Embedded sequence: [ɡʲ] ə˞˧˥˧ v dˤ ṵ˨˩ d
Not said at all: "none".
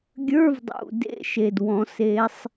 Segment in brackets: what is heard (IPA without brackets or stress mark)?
ɡʲ